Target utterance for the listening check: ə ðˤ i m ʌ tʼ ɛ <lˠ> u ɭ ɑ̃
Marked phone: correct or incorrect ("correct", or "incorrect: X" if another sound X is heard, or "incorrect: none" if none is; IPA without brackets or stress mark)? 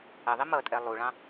correct